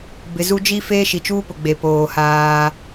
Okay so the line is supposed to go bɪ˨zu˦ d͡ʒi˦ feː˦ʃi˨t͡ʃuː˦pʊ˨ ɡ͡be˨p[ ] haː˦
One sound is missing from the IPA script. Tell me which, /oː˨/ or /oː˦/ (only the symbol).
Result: oː˨